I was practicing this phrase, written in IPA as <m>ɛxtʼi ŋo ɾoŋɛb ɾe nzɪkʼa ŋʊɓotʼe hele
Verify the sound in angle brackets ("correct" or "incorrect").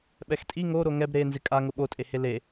incorrect